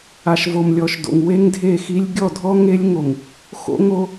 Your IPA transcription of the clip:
a˨ ʃ v o˨ m lʲ ɔ˨ ʃ d o̰˨ ŋ w e˦ ŋ dʱ e˦˨ x i˦ lʲ ɡʲ ɔ˦˨ dʱ ɔ˦ ŋ e˦ lʲ ŋ o˨ ŋ | x o̰˦ ŋ o˦

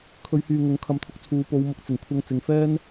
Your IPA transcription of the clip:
kʰ ɵ˨˧ ɥ h yː˨ ŋ ʊ˨˥ ŋ kʰ ɐ˨˥ m t̪ʰ ʊ˨˥ k̚ t͡sʰ uː˨˧ p o˨˧ w m ʊ˨˥ k̚ t͡s ɪ˨˩ ŋ kʷʰ ɐ˧ ŋ t͡s ɪ˨˧ ŋ f ɛː˥ n

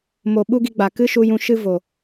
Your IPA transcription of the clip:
m o˧ ɓ u˦ ɡ i˧ ɡ͡b a˨ k ɨ˦ ʃ u˧ j ũ˧ ʃ ɨ˦ v o˨

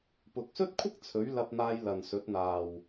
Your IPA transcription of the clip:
p ʊ˨ k̚ s ɵ˥ t̚ kʷʰ ɪ˥ k̚ t͡sʰ ɵ˨˥ ɥ l ɐ˧ p̚ n̪ aː˧ j l ɐ˨ n s ɵ˨˥ t̚ n̪ aː˨ w

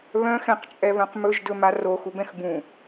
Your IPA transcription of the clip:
β œ̃ x ɛ̃ q t͡ʃʼ ɛ β œ̃ q m ɵ ʒ d ɵ m a r o x u b ɛ̃ x b ũ

